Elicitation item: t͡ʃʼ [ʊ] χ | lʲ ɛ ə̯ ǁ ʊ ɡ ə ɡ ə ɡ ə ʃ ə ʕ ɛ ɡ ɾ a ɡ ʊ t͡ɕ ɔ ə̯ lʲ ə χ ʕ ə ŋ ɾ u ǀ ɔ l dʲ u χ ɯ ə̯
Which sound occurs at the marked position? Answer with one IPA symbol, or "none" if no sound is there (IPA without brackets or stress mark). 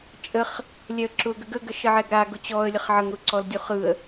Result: ə